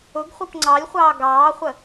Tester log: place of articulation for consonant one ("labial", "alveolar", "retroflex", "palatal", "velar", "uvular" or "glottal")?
velar